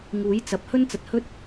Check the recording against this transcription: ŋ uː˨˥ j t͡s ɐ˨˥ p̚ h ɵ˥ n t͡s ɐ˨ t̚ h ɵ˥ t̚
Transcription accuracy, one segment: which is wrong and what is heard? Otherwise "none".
none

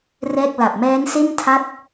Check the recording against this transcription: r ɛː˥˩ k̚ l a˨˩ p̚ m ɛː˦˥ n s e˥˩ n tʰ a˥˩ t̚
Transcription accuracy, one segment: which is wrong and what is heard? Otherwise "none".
none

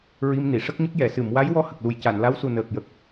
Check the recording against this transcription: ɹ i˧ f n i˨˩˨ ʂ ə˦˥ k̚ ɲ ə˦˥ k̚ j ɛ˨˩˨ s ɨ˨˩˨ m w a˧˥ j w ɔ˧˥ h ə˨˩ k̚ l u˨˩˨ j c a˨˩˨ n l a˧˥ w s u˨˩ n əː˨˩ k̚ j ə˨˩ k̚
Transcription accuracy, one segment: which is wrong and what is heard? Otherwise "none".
f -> m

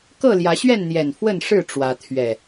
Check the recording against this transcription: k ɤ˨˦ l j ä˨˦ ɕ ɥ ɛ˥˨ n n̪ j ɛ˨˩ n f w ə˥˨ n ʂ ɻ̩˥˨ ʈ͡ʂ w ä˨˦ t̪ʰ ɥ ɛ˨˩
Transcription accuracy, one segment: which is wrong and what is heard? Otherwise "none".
ɤ˨˦ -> ɤ˥˨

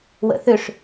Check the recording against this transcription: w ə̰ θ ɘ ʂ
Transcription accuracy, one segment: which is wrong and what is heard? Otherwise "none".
ɘ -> ø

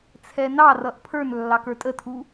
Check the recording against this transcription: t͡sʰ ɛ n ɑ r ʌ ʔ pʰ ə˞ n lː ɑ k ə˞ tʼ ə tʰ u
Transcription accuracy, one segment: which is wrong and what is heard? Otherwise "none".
none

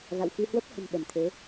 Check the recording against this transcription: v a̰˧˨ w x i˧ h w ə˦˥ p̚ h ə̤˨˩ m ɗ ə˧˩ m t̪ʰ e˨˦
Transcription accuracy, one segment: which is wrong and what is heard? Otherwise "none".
none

